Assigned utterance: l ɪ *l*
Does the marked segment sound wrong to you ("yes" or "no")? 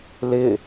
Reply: yes